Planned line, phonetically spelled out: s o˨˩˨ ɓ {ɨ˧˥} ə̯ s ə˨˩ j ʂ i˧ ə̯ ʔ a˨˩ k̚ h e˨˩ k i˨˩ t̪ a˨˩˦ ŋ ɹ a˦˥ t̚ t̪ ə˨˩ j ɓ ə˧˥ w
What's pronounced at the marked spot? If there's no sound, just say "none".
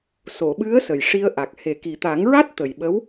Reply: ɨ˧˥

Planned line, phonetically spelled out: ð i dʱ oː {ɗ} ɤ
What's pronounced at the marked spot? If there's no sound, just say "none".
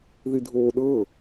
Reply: ɗ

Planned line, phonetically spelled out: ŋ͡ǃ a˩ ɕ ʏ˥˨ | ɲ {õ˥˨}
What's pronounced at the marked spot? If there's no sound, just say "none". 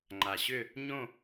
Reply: õ˥˨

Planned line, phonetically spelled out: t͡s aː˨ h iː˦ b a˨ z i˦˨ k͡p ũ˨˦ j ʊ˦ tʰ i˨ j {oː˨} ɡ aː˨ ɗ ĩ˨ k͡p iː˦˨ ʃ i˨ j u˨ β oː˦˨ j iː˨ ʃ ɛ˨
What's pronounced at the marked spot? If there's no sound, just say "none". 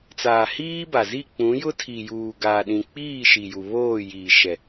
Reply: uː˨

